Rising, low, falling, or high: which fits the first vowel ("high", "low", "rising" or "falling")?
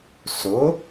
rising